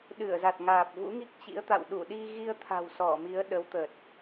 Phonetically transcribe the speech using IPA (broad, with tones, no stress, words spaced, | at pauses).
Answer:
ɗɨ˧˩ə̯za˨˩t̚ŋaː˨˩p̚ vṵ˧˥ŋi˦˥k̚t͡ɕḭ˧˥ə̯t̪a̰˧˨w ɗu˧˩ɗi˧ ɣi˧ə̯t̪ʰa̤˨˩w sɔ˧˩mi˨˦ə̯ ɗə˨˦wt̪ə˨˩t̚